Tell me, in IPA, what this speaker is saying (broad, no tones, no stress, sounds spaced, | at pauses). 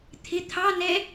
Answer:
t̪ʰ ɪ t̪ʰ ɑ n ɛ